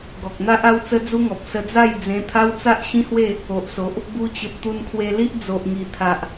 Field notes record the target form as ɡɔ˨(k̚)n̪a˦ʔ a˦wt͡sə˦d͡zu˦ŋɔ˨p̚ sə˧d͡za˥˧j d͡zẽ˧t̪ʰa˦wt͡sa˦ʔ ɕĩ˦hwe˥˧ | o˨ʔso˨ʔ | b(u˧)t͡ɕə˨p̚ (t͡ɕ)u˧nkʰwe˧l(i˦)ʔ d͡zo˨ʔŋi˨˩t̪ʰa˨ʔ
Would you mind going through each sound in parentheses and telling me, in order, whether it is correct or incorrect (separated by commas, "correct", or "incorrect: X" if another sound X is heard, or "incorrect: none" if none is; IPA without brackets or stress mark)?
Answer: correct, correct, incorrect: t̪, correct